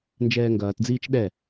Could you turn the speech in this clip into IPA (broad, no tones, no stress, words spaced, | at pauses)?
nd͡ʒɛːŋɡɐːtd͡ziːt͡ʃ ɗɛ